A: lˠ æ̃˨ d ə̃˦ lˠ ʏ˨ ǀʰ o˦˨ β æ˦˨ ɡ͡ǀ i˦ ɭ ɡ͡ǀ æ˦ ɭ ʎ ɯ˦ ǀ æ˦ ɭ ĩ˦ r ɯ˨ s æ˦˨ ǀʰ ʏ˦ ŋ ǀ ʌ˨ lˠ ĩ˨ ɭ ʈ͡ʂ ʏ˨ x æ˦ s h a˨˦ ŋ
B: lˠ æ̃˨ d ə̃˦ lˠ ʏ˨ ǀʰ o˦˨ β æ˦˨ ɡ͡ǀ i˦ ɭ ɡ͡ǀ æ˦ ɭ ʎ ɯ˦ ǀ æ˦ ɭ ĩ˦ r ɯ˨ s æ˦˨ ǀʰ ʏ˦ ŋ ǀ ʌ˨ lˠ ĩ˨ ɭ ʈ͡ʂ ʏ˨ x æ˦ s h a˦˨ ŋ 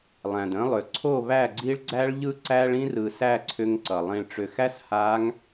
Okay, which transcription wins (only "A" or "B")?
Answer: A